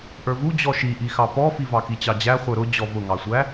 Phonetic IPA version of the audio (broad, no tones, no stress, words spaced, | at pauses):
ʔə˞vu d͡ʑɔʃiʔixɑ pɔfi vɑkit͡ɕɑd͡ʑæ χʷə˞ɾʊ d͡ʑɔvʊŋɑsʷæ